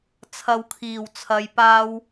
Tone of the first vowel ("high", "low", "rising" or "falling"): low